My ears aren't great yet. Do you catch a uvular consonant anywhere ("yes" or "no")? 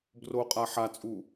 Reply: yes